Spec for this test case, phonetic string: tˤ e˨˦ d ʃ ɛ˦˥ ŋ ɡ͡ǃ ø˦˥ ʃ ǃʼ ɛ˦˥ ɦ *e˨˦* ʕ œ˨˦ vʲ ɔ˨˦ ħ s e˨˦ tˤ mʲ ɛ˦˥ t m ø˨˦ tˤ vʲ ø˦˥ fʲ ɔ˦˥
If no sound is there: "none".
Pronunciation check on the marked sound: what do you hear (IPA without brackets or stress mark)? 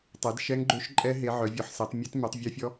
e˨˦